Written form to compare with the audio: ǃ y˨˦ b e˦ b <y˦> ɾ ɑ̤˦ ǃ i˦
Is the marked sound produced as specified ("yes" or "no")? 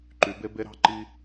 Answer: no